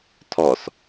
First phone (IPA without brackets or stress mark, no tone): tʰ